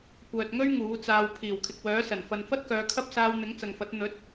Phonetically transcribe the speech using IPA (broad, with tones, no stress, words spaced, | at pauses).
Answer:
kʷœː˨t̚ŋɵ˥ɥ ŋuː˨˥t͡saː˧w pʰiː˨˩wkʰɪ˨k̚wœː˨˥ sɐ˨˩nfɐ˨nfɐ˥t̚kœː˨˧ kʰɐ˥p̚saː˧w n̪ɪ˨˥ŋt͡sɐ˨ŋfɐ˨˥t̚ n̪ɵ˨˥t̚